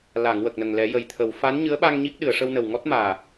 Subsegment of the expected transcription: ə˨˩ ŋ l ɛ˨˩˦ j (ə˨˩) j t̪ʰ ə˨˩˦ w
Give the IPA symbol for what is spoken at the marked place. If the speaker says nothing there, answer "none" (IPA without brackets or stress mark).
ə˨˩